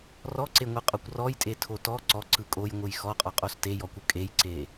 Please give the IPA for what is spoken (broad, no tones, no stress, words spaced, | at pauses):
rɔǀeŋʷɯqʼokʷ rɔjtʼetʰo tɔ ǀɔǀɯ kʼojŋʷɯj xɔqʼɔqʼos tejɔkʷɯ kʼejǀe